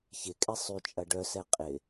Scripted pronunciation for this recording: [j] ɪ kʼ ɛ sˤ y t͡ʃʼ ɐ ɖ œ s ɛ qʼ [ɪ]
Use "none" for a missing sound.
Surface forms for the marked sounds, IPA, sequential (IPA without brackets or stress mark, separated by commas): ç, ɪ